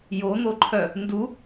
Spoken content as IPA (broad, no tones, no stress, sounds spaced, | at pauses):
j o n̪ o ǃʰ œ | n d u